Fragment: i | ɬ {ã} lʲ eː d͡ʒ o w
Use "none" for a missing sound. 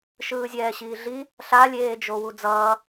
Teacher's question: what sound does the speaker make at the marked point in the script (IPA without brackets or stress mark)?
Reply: a